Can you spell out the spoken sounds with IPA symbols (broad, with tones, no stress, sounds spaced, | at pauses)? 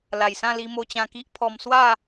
l a˨˩ j s ã˥˧ l i˧ m o˧ t͡ɕ ã˧ k i˦ ʔ pʰ ɔ˧ m s w a˥˧